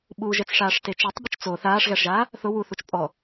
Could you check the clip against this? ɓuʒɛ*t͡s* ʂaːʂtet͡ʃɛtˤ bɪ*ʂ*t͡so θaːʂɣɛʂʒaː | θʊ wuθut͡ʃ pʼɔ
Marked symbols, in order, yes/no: yes, no

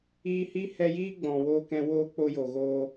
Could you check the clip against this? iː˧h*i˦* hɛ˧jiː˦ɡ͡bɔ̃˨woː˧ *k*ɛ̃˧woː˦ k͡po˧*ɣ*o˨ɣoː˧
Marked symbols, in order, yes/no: yes, yes, no

